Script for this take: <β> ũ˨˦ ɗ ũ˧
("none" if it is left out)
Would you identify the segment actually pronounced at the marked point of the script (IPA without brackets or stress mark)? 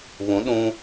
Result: β